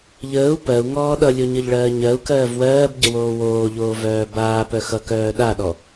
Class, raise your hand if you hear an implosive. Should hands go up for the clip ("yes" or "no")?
yes